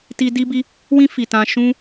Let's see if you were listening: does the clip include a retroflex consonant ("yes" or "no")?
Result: no